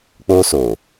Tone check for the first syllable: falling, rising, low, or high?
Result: high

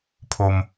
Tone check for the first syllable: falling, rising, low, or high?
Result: low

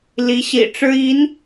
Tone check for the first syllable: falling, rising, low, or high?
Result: rising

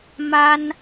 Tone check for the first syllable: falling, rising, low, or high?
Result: high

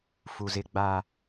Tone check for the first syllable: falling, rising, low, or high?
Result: low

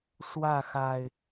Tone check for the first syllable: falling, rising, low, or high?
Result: falling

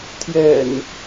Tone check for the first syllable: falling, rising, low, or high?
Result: low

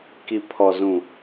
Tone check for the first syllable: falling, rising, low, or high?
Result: low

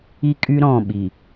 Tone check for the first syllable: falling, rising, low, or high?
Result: high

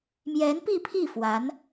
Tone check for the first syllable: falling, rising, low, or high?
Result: rising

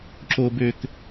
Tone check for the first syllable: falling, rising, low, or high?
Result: high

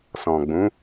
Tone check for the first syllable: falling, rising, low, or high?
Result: low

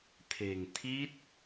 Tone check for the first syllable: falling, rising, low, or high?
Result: low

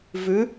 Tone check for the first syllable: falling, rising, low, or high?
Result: rising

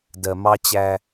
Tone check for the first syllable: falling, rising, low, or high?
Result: low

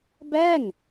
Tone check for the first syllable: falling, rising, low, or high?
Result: falling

